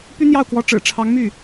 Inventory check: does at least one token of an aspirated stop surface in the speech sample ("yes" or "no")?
yes